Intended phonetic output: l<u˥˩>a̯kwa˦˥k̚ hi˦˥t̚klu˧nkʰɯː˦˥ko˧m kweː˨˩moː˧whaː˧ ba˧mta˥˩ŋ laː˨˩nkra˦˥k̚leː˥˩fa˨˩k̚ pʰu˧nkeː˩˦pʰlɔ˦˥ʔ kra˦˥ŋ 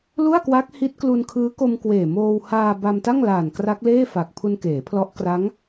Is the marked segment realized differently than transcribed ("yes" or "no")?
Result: no